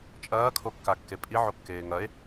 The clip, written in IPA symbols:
t͡ʃʼ ɐː kʰ o kː a kː e pʼ i ʕ o kː eː ŋ ɐ e̯

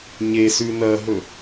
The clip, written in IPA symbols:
ɲ e s ʉ n ɐ ɦ ɵ

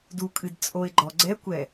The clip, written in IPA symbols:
d u kʼ ɨ d t͡sʼ o ɪ̯ ɡ͡ǃ ɔ ɡ͡ǀ ɛ kʷ ɛ

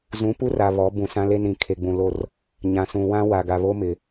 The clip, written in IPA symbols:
z ũ˨˦ p u˦ r a˨ β ɔ˨˦ b ũ˨ s ã˦ l e˦ n ɾ ĩ˨ kʰ e˨ ɡ͡b ũ˨ l o˦˨ r | ɲ ã˨ s ũ˨ w ã˦ w a˨ ɡ a˨ β o˦ m ɪ˨

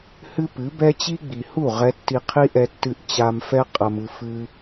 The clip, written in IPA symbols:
h ɨ˦ p ɨ˨˦ b ɛ˦ t͡ɕ i˦ ɡ͡b i˨ h u˦˨ ʁ ɛ˦ tː i˧ qʰ i˦ ʔ ɛ˧ tː ɨ˧ ʔ t͡ɕ a˧ m f ɛ˦ qʼ ɐ˧ m ɨ˧ f ɨ˦

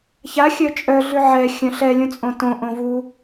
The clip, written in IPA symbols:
ç a xʲ œ t͡ʃʼ œ ɮ ʉ ʕ ɛ xʲ œ̃ ɬ ɛ lʲ ũ t͡sʼ õ t õ ʔ õ v u

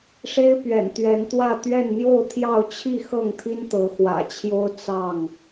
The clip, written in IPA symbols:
ʂ e˦ ɪ̯ p ɥ ɛ̰˨˩ n t̪ ɥ ɛ˨˦ n t̪ w ä˥˨ t̪ ɥ ɛ˥˨ n n̪ j o˥˨ ʊ̯ t̪ʰ j ɑ˥˨ ʊ̯ t͡ɕʰ i˥˨ x ɤ˥˨ ŋ t̪ʰ i˦ n t̪ ɤ˨˦ x w ä̰˨˩ t͡ɕʰ j o˦ ʊ̯ t͡s ɑ˥˨ ŋ

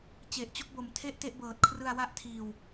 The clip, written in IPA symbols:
t͡ɕ e˨˩ ʔ t͡ɕ o˥˩ k̚ b o˩˦ m tʰ e˥˩ ʔ t e˥˩ ʔ b ɤː˨˩ t̚ kʰ r ɯ˧ a̯ w a˥˩ ʔ tʰ iː˧ w

